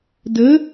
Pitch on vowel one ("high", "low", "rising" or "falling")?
rising